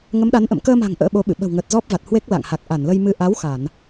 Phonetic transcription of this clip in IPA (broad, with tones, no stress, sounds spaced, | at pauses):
ŋ ə˨˦ m ɗ a˨˦ n ʔ ə̰˧˨ m k əː˧ m a̤˨˩ ŋ ʔ ə̰ː˧˥ ɓ o˨˦ ɓ ɨ̰˧˨ ɓ ə̤˨˩ w ŋ əː˨˩ t̚ z ɔ˦˥ p̚ v a˨˩ t̚ h w e˦˥ k̚ l a̰˧˨ ŋ h a˨˩ k̚ ʔ a˧˩ n l ə˧ j m ɨ˧ ʔ a˨˦ w x a˧˩˨ n